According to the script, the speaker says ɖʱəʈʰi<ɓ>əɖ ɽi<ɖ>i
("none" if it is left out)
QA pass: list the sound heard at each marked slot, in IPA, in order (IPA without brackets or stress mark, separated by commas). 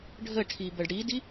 b, d